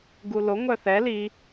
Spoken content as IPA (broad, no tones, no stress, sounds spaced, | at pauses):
ɡ u l o ŋʷ œ θ ɛ l i